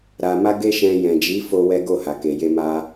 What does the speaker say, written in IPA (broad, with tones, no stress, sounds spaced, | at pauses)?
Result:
ɾ a˨ m a˧ ɡ e˦ ʃ ɛ̃˧ j ɛ̃˨ d͡ʒ i˨˦ f o˦ w ɛ˦ ɡ o˦˨ h a˨ k e˨ j e˧ m a˧